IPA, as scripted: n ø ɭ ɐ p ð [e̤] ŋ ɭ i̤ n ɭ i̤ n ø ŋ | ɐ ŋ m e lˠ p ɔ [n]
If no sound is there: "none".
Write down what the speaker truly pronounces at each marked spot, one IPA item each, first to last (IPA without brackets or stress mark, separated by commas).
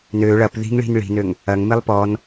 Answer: i̤, n